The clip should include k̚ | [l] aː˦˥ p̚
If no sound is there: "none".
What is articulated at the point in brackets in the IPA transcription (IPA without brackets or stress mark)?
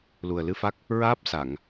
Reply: ɹ